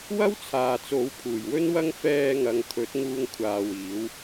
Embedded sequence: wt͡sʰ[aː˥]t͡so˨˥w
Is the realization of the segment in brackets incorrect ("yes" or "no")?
yes